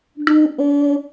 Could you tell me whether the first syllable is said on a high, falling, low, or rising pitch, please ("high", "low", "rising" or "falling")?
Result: high